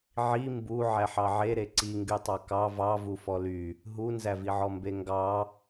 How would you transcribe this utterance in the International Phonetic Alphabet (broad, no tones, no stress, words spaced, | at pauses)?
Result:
ʕi mbu ʕæħɑʕeɾe ǀiŋɡytˤɑ kɑ vɑvu fɔly | ɦunzæviʕɔ mbeŋɡɑ